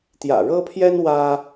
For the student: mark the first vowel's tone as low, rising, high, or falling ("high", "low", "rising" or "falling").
low